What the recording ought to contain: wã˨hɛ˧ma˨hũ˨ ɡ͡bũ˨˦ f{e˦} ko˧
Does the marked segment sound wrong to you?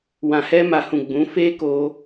no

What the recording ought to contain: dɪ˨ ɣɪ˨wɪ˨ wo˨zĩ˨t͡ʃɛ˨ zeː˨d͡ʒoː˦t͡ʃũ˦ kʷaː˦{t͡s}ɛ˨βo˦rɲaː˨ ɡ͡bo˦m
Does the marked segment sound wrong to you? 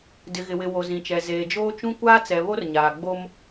no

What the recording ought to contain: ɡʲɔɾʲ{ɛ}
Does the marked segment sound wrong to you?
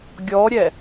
no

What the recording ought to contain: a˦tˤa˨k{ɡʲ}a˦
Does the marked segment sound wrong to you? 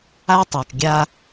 no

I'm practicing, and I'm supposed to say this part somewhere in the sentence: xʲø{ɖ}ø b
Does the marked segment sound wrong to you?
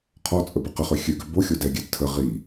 yes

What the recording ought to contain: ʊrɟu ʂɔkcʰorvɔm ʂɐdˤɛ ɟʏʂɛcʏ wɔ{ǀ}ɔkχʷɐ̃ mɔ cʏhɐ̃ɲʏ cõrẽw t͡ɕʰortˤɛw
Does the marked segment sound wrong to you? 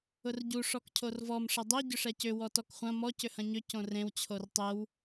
yes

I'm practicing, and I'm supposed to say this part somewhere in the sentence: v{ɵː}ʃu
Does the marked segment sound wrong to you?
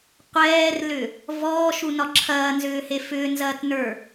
yes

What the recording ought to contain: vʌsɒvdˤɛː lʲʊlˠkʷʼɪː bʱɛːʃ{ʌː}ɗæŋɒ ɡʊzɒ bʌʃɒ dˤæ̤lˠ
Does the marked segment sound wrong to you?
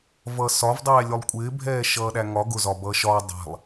no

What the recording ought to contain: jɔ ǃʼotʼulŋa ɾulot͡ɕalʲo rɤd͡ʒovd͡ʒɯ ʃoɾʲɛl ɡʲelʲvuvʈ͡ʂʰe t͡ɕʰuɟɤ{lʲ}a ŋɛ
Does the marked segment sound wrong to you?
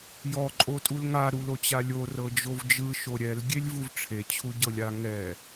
no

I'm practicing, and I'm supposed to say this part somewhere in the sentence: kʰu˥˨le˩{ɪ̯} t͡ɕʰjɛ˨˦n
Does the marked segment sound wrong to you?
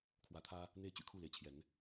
no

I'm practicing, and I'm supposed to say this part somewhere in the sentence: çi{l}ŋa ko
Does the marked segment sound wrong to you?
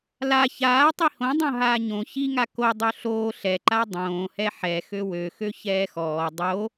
yes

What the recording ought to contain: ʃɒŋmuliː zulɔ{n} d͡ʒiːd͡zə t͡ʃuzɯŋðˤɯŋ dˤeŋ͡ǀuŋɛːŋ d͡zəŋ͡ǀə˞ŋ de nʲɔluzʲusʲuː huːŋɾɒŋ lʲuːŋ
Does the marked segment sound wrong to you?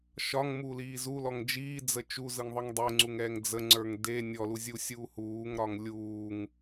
yes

